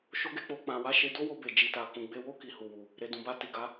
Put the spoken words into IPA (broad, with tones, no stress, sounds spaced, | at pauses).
ʃ o˦ ɡ e˦ k͡p o˧ k͡p ã˨ w a˨˦ ʃ e˧ d o˦ w o˧ b e˨ d͡ʒ i˨ t a˨ k ũ˨ ɡ͡b e˧ w o˦ k i˧ h u˨ w u˨ | ɾ e˨ d ũ˨ b a˧ t i˨ ɡ a˨˦